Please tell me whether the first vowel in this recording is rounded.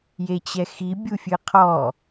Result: no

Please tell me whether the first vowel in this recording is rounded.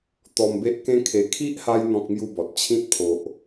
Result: yes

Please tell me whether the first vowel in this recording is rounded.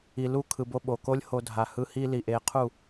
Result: no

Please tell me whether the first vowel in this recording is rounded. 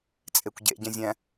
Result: no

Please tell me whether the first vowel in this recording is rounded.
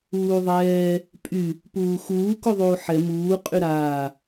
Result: yes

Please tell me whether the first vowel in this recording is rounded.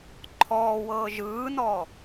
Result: yes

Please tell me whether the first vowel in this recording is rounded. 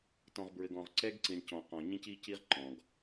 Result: yes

